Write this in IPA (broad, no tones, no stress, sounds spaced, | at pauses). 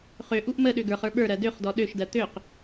χ ø ʔ u ʔ m ə ɗ ø ɡ ə˞ χ ə˞ ɓ ə˞ ɾ ɜ d ø χ d ɔ ɗ ø ʃ d ɜ t̪ ø q